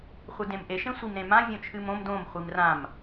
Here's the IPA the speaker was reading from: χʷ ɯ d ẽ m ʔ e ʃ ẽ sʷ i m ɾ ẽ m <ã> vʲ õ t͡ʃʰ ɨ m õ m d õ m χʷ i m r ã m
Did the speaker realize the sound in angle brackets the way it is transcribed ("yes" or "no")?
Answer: yes